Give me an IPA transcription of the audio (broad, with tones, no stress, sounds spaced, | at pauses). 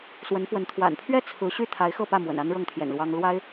s w ə˧˥ n f w ə˧˥ n t̪ʰ w a̰˨˩ n pʰ ɥ ɛ˥˩ t͡sʰ ɹ̩˧˥ ɕ y˥˩ t̪ʰ a˧˥ ɪ̯ x ɤ˥˧ p ä˥˩ m w ə̰˨˩ n a˥ n ɻ ɤ˥˩ ŋ t̪ʰ j ɛ̰˨˩ n l w ɑ˥ ŋ l w a˥ ɪ̯